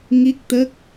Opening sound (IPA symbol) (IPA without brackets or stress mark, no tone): ŋ